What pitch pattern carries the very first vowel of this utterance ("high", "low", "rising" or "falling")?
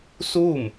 falling